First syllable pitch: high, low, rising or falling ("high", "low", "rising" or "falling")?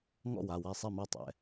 falling